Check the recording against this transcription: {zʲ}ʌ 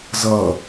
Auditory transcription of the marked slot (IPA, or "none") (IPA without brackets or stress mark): z